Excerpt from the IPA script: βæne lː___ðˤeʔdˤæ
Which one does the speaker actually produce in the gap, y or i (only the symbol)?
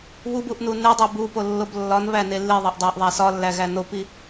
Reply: i